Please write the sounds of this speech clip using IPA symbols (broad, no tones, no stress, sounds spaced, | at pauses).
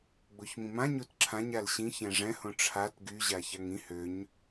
ɡ͡b o ç m ĩ m ã ɲ o t ǁʰ ã ɲ a l ɕ ĩ ç ɛ̃ ʐ ɛ̃ h õ ʈ͡ʂʰ a t ɡ y ʑ a ç a ŋ ĩ h ø ɲ